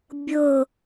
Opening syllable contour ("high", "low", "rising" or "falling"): falling